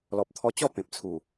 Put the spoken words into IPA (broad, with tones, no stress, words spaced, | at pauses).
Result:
lɔ˨p̚t̪ʰɔ˧t͡ɕɔ˥˧ pẽ˨p̚t͡sʰu˨˩